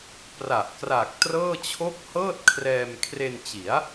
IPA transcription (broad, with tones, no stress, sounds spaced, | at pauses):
p r a˨˩ ʔ k r a˨˩ k̚ t r ɤː˥˩ t͡ɕʰ o˥˩ k̚ h ɤː˥˩ t̚ kʰ r ɛː˧ m kʰ r e˧ n t͡ɕ i˩˦ a̯